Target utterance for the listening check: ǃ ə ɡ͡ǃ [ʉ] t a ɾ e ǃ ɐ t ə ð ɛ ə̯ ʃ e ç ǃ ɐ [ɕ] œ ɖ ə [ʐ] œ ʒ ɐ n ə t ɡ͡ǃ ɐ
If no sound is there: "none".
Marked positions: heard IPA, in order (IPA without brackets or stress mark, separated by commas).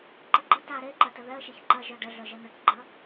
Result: ə, ʒ, ɮ